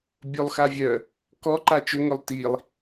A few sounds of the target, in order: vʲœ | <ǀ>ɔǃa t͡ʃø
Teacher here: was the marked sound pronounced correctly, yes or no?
no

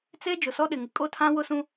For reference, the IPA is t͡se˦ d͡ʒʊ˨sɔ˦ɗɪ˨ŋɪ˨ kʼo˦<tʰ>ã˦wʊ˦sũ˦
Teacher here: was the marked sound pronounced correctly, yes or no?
yes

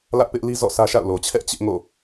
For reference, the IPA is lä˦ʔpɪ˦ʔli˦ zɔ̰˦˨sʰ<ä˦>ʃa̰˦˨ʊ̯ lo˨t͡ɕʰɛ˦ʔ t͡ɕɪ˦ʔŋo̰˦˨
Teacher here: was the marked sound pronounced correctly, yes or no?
yes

